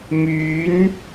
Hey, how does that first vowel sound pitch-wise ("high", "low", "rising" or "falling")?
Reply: rising